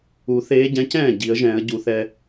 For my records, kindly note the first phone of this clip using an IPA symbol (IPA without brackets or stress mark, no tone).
u